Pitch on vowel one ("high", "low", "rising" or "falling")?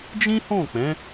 high